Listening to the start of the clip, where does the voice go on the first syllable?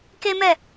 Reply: high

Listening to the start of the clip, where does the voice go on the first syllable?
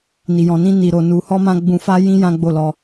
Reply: low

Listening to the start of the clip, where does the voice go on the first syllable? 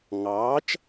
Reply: rising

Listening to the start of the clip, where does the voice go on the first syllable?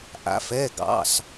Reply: rising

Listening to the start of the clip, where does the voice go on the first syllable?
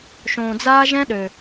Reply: low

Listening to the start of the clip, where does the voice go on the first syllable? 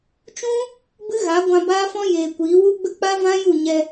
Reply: high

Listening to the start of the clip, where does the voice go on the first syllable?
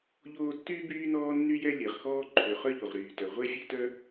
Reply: high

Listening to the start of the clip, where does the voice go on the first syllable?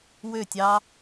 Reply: falling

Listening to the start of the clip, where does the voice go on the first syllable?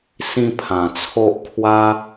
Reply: high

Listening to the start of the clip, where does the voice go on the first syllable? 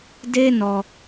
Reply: high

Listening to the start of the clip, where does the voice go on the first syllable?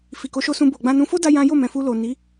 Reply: low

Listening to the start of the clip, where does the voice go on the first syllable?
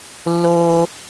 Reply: high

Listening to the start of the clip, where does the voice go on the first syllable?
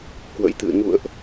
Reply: rising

